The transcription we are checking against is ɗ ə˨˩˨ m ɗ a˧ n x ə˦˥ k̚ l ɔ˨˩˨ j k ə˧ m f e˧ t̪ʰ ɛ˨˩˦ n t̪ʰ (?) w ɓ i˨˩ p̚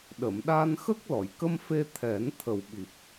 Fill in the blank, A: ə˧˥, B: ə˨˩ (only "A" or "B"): B